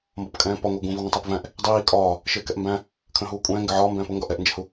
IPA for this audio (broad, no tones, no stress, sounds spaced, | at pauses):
m b ɒ p kʼ ɛ̃ː p ɒ ŋʷ æ ɡ ũ v i ŋʷ ə̃ tˤ ɜ p v æ̃ ʔ | dˤ iː kʼ ɒː | ʃ ɪː k ɛ ʔ m b æ̃ | kʰ ə̃ː ɦ uː kʷʼ ɛ̃ː ŋ ɡ ɪ ʕ ɒː m b ɛ̃ː p ʊ ŋ ɡ ɒ ʔ ɛ ʔ n d͡ʒ ɪ h u